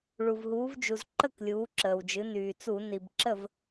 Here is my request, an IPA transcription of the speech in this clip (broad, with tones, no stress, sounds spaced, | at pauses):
ɭ u˩ v ɦ uː˩˧ v d͡ʒ u˩ z ǃ ə˥˩ k lʲ uː˩˧ ǁ əː˩ w d͡ʒ ɨ˩˧ n yː˩ t͡s u˧˩˧ n i˩ b ǁ ə˥˩ v